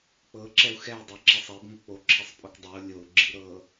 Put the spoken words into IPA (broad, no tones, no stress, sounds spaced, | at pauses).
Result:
k͡p ɤ ǁ ɛ u̯ x ɛ u̯ dˤ ɛ ǁ ɛ sˤ ɛ b ŋ ɤ k͡p o ǁʰ i sˤ pʼ o k dˤ ɛ u̯ lʲ o u̯ ɡ͡ǁ i ɾ ɤ